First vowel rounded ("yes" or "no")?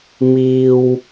no